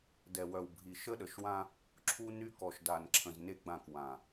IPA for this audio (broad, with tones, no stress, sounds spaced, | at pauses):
d ɛ˨ w œ˨ w bʱ i˨ ʃ ə˦ ɗ ə˨ ʃ w ã˦ | ǁʰ u˦ n y˦ k ɔ˨ ʃ d a˨ n ǁʰ ə̃˨ z n e˦ ɡ͡b ã˦˨ k w ã˨